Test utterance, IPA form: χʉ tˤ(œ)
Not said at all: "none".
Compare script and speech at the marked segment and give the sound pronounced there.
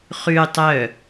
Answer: œ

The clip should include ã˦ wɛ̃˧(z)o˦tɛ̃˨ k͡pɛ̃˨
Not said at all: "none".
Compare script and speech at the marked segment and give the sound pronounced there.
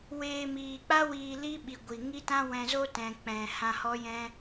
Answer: z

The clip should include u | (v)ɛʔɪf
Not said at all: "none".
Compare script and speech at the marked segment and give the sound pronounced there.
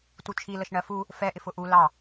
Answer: f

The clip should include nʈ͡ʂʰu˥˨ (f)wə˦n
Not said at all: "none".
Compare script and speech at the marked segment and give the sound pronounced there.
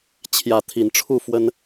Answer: f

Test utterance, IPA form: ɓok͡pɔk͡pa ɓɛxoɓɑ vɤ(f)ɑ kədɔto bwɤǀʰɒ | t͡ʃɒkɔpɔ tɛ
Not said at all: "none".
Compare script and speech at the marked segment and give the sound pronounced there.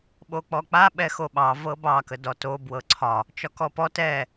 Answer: b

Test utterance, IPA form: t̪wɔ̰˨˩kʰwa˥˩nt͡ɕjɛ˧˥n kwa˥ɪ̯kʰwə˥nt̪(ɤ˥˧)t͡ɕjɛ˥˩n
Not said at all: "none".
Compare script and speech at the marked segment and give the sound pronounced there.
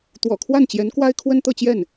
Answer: ɤ˥˧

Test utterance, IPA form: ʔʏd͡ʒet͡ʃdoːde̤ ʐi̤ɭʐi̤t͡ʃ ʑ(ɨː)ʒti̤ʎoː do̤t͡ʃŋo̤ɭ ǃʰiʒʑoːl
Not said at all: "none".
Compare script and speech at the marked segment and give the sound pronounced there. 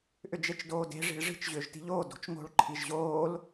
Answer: ʏː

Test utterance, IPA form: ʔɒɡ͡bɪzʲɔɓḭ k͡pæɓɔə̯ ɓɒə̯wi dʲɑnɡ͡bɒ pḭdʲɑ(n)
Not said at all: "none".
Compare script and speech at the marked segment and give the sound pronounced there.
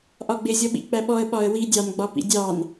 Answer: n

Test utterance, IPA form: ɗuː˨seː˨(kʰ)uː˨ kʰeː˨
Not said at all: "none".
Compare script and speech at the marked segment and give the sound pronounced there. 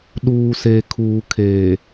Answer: kʰ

